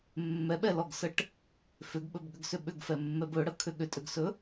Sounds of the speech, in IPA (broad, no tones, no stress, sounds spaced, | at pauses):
mː ɛ ɓ ɛ l ɔ ɡ s ə ʈ | f ʏ ɡ ɓ ɵ b ɠ ʏ ɡ s ʏ ɓ ʏ ɡ f ɛ mː ɛ b ɵ ɽ ə kʰ ʏ ɠ ʏ tʼ ʏ ɡ s ɵ